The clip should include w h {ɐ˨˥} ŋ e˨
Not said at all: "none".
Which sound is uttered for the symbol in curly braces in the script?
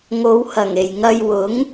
ɐ˨˩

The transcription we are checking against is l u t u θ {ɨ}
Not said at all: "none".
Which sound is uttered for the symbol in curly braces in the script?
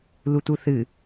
ɨ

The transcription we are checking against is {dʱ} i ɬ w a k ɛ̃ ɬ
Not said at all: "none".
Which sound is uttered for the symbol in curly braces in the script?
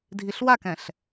dʱ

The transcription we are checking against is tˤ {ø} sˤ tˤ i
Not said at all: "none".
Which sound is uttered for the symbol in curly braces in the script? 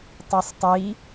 ø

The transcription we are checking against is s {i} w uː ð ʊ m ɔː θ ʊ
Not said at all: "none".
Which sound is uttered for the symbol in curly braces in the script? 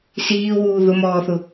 iː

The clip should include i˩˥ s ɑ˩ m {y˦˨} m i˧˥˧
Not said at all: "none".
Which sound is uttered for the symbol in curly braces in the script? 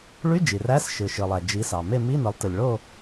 e˦˨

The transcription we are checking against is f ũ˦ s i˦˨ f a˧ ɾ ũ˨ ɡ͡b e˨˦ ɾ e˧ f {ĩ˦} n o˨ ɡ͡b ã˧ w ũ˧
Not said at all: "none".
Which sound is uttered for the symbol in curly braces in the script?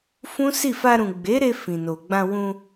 ĩ˨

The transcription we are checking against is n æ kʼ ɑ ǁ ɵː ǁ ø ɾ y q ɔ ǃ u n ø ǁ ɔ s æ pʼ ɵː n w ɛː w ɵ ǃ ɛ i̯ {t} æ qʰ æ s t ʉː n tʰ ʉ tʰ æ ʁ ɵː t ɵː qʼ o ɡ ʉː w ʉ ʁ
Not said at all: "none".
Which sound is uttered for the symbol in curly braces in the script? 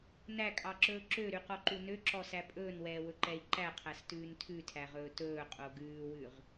ǃ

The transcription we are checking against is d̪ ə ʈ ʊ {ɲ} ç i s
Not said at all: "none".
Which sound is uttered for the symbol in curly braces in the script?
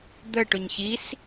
ɲ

